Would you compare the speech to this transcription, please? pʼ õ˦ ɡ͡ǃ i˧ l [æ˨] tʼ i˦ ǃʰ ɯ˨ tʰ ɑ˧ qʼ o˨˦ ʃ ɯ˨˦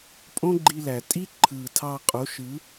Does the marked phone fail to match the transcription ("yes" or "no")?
no